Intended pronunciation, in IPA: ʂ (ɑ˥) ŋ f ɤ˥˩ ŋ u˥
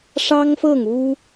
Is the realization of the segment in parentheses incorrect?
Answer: no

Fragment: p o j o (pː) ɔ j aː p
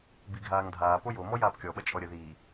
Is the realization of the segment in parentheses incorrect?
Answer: yes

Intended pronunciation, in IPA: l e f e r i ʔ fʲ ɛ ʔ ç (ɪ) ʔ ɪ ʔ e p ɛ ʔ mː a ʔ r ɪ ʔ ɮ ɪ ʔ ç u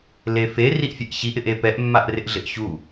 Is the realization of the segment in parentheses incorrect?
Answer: yes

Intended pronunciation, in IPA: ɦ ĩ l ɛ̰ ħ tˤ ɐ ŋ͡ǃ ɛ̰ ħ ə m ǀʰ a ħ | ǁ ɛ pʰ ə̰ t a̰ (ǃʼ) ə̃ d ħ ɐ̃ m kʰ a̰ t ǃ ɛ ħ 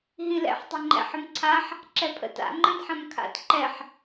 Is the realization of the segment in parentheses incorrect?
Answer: yes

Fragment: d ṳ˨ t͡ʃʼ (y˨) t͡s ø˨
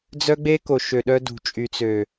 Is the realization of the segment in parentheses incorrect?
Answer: no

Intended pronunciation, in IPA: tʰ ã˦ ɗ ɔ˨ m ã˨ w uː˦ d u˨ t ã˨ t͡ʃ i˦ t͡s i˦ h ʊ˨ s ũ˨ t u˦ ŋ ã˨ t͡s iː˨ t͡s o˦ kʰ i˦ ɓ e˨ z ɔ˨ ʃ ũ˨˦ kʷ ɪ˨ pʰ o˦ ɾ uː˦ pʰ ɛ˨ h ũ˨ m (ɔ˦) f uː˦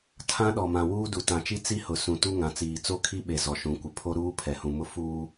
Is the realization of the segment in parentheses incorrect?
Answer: yes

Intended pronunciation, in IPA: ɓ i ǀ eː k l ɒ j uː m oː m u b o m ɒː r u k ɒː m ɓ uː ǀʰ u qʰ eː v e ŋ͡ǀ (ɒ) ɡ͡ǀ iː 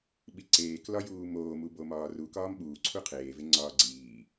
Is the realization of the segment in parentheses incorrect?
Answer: yes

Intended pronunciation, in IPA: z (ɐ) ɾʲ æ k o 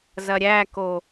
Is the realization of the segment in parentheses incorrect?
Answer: no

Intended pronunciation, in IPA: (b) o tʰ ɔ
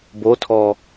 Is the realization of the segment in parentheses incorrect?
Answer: no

